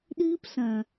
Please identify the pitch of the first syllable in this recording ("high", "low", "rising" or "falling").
high